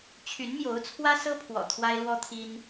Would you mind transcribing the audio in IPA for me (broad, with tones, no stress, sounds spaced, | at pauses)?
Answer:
t͡ɕʰ y˧˥ n m j o˧˥ ʊ̯ t͡sʰ w ä˥ s ɤ˥ pʰ w ɔ̰˨˩ t̪ʰ w a˥ ɪ̯ l w ɔ˥ t̪ʰ i˥ n